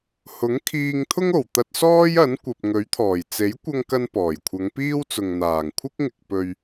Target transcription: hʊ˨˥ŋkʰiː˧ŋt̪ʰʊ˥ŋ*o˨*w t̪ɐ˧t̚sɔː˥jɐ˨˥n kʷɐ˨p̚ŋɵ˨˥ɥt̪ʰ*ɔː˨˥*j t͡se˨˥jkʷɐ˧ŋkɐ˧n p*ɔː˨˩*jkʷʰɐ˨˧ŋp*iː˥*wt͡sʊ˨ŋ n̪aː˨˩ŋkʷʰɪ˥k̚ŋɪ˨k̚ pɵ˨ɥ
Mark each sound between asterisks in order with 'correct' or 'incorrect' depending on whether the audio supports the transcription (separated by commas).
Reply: incorrect, incorrect, correct, correct